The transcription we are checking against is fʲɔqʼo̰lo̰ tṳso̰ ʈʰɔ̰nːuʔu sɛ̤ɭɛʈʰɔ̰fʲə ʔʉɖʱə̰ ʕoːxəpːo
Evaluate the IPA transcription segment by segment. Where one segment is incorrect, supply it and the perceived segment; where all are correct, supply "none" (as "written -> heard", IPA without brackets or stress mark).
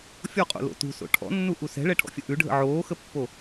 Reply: none